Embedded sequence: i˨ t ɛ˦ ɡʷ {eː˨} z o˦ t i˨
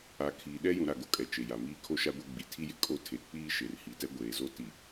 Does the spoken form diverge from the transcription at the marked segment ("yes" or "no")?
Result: no